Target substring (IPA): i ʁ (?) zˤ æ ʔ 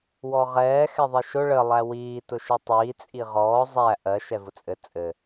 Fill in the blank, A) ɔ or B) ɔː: B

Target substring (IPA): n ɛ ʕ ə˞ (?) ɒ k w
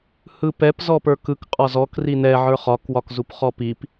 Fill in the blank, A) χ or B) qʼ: A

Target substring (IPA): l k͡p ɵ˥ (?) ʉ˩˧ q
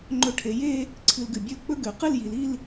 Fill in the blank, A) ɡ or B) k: A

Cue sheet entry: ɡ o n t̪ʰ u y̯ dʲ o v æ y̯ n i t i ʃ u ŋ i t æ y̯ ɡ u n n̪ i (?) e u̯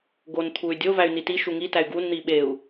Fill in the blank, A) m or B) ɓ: B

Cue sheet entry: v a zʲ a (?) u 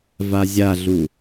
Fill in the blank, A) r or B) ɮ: B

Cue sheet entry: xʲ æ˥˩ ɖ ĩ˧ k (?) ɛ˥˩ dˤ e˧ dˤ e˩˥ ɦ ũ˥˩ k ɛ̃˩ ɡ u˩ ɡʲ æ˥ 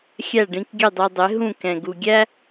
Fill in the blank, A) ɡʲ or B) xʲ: A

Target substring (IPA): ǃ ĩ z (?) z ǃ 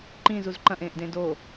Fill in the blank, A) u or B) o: A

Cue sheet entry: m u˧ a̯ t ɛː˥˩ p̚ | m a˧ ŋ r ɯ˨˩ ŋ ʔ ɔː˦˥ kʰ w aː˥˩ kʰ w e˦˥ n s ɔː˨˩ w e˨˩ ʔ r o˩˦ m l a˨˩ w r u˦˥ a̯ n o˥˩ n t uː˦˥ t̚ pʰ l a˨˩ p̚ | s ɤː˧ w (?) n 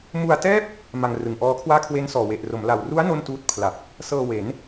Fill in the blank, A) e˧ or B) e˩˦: B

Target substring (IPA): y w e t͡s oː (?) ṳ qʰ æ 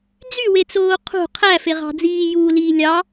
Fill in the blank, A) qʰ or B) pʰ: A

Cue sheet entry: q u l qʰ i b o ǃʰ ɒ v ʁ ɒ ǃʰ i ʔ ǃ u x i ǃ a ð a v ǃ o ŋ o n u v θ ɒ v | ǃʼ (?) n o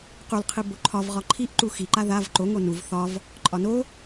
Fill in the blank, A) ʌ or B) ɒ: B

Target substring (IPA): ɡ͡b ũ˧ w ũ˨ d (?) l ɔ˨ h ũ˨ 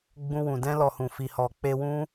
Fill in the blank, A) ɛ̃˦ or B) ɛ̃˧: B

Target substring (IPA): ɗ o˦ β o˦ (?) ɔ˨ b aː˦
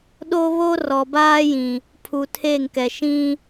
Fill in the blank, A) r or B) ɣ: A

